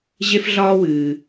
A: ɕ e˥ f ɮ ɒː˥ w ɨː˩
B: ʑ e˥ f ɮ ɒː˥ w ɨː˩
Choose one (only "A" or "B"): B